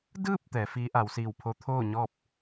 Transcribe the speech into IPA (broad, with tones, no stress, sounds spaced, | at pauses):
d ɯː˥˨ p̚ t̪ ɛː˩˧ f iː˧˥ ʔ a˩˧ w s iː˧˩ w pʰ o˧˥ t̪ʰ oː˥˨ ɲ ɔː˥˨ p̚